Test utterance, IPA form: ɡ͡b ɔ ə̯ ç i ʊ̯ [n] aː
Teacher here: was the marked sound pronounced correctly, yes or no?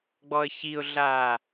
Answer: no